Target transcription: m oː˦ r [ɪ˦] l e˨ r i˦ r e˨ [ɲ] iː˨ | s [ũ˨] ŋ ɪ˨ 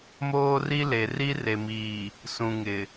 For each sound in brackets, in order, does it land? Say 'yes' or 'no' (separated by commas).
no, no, yes